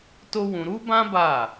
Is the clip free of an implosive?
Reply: yes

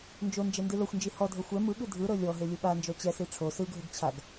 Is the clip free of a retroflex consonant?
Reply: no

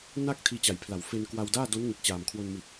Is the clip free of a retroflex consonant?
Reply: yes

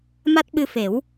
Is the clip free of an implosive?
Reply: no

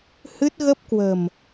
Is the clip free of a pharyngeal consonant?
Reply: yes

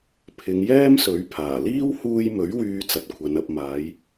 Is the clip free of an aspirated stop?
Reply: no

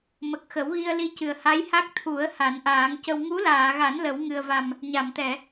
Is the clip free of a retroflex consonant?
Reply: yes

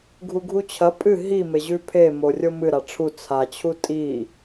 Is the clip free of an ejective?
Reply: no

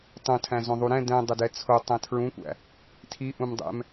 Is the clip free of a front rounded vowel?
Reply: yes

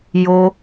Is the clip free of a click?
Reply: yes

